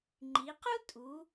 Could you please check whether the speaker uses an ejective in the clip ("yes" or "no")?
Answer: yes